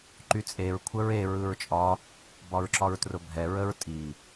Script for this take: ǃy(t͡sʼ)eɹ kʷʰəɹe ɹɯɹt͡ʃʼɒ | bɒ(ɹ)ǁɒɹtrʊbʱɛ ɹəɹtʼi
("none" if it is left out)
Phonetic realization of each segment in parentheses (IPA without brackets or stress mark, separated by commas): t͡sʼ, ɹ